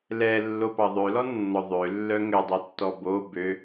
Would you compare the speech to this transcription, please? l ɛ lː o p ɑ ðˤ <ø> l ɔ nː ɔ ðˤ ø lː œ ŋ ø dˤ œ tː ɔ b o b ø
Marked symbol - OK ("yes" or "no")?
yes